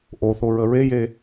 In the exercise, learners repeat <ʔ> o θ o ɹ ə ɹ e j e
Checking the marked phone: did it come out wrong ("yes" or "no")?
no